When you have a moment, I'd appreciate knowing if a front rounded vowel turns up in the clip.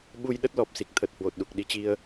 no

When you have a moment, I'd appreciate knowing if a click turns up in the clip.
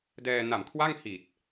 no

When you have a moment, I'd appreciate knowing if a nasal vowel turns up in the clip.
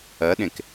yes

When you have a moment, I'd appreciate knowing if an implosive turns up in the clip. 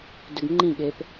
yes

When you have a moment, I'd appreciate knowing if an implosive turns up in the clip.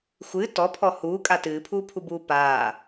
no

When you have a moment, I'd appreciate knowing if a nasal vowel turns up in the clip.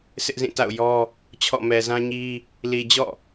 yes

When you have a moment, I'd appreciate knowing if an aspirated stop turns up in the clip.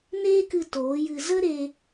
no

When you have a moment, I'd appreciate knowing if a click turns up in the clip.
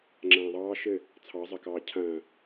yes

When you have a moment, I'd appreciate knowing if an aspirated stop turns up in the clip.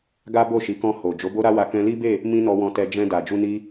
no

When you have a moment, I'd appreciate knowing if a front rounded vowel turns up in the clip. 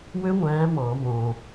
yes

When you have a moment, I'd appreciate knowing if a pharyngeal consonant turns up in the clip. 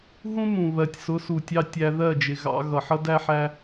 yes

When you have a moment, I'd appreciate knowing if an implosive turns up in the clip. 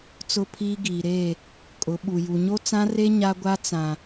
yes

